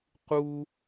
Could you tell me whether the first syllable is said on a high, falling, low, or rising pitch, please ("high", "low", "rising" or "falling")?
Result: high